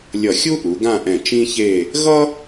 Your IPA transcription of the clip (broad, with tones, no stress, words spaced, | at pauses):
lʲʌ˧˩xʲu˥ ʔu˩˧ ɡã˥˧ʔɛ̃˧˩ t͡ʃĩ˥çe˥˧ | ɣʌ˥